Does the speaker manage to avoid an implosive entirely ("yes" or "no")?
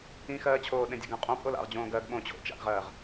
no